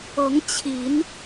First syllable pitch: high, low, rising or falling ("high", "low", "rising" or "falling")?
rising